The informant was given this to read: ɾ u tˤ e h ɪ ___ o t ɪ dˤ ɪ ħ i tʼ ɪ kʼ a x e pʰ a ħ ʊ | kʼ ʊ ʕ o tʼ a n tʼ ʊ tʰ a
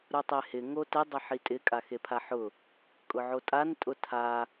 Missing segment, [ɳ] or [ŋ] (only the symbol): ŋ